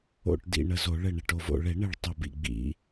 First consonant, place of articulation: retroflex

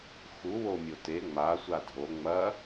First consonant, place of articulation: velar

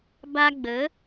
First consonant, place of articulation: labial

